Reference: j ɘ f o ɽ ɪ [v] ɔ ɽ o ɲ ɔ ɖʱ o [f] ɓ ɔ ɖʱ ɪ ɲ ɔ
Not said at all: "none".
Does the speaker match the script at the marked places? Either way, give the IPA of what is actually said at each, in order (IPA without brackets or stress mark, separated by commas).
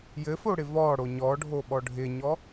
v, none